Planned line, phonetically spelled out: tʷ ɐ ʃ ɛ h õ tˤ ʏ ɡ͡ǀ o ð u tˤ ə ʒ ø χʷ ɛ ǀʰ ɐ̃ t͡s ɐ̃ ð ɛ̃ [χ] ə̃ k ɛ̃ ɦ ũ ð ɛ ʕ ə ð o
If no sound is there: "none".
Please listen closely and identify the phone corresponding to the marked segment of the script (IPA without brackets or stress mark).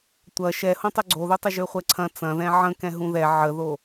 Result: ʕ